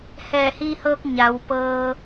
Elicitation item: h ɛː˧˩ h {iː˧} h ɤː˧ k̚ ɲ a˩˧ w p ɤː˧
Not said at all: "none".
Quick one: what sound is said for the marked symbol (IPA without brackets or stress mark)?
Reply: iː˧